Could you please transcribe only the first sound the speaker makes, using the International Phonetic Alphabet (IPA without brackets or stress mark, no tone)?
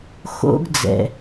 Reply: x